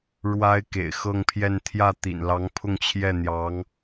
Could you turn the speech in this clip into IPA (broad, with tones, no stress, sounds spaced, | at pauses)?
ɻ w a˥ ɪ̯ k ḛ˨˩ ɪ̯ x ɤ˥˧ ŋ pʰ j ɛ˥˧ n t̪ʰ j ä˥˩ t̪ ḭ˨˩ n l ɑ˧˥ ŋ pʰ ʊ˥˧ ŋ t͡ɕʰ j ɛ˥˩ n̪ j ɑ˧˥ ŋ